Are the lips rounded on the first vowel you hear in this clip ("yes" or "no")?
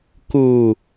yes